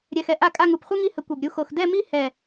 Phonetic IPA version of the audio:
ɾʲ ɛ˧ x ɛ˧ ʔ a˥˧ kʼ a˥˧ ŋ u˧˩ p χʷ i˥ ŋ i˥˧ h ə˧ kʷ ɛ˧˩ b ɾʲ u˥˧ x o˧ x d ɛ˥˧ m i˥ h ɛ˧˩

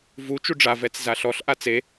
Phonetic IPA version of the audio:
v u t͡ʃ u ɖ͡ʐ a v ɛ t͡s z a ɬ ɔ ɬ ʔ a t͡s e

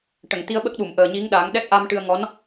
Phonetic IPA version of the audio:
ʈ ə˨˩˨ ŋ t̪ i˧ ə̯ ɓ ə˦˥ k̚ ɗ u˨˩˨ m ʔ əː˨˩ ɲ i˧˥ ŋ ɗ a˨˩˦ ŋ ɗ ɛ˦˥ t̚ ʔ a˧ m ʈ ɨ˧ ə̯ ŋ ɔ˧˥ n

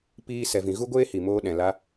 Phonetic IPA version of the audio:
p iː˧ s ɛ˨ v ĩ˨ ɣ u˦ ɡʷ eː˦ h i˨ m oː˦ ɗ ɛ̃˨ l a˦

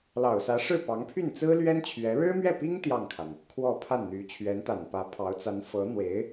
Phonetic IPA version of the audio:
l ɑ˨˩ ʊ̯ s ä˧˥ ʂ ɻ̩˥˩ p ɑ˧˥ ŋ pʰ y˥˩ n t͡s ɹ̩˥ l ɥ ɛ˥ n t͡ɕʰ ɥ ɛ˧˥ ɻ ɻ̩˥ m ɥ ɛ˥˩ p i˥ ŋ t̪ j ɑ˥˩ ŋ kʰ a˩ n | kʰ w ɔ˥˧ pʰ a˥˩ n n̪ y˧˥ t͡ɕʰ ɥ ɛ˧˥ n t̪ a˨˩ n p ä˧˥ pʰ ɑ˧˥ ʊ̯ t͡s a˧˥ n f ɤ˧˥ n̪ w e˧˥ ɪ̯

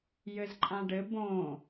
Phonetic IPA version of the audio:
j ɘ z ǃʼ ã ɖ ɘ b õ

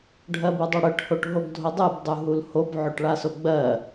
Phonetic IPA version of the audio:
ɖʱ ɜ b u dˤ o ɽ ɜ ʈ h o ʈ ɦ o ɡ dʱ o dˤ u b dˤ u ɦ u l h o b ʕ o ʈ ɭ a s o ɡ͡b ɜ

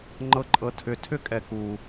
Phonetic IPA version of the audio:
ŋ͡ǃ ɤ ǃʼ ɤ tʰ ʏ tʰ ʏ kʼ ɛ k u

